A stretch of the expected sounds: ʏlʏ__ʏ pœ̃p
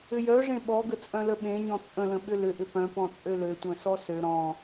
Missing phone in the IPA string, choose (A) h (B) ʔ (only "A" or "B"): B